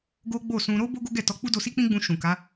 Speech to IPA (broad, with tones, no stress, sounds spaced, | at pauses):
ɡ o˦ ɡ͡b o˦˨ s ũ˧ ɾ o˦ b o˦ ɡ o˦ ɡ ɛ˦˨ t ɔ˧ k͡p u˦ d o˧ s i˦ k͡p ĩ˦ ɡ͡b ũ˧ ʃ ũ˨ k a˨˦